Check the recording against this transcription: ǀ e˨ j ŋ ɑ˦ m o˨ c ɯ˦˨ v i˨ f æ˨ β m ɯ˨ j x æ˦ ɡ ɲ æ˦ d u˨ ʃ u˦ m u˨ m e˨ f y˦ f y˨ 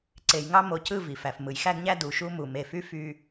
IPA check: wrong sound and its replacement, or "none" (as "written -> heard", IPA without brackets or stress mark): β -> f